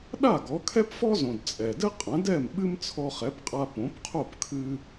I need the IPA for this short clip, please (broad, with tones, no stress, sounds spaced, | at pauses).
ɗ a˥˩ ɡ ɔ˩˥ kʰ ɛ˥ p f ɔ˥ z õ˩ d t͡sʼ ɛ˩ d ɘ˥ qʼ ɐ̃˩˥ d ɛ˥˩ m ɓ ɨ˥ m t͡sʰ ɔ˧ χ ɛ˩˥ p qʼ a˧ p õ˩˥ p qʰ o˥˩ p kʰ ɨ˧